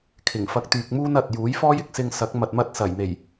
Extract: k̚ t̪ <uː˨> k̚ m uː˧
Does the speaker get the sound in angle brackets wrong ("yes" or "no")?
yes